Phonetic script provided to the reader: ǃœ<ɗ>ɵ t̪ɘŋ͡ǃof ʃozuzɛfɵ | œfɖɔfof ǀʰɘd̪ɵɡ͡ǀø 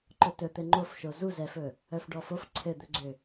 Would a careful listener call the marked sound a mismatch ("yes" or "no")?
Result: yes